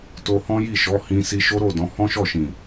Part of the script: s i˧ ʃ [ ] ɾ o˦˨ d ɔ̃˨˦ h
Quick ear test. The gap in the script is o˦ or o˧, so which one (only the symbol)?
o˦